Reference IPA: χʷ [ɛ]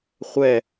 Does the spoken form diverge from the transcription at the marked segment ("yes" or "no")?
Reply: no